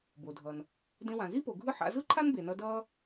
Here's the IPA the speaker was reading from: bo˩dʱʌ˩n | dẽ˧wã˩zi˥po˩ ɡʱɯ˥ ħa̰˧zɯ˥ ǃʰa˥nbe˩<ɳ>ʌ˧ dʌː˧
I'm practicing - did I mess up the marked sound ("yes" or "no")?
yes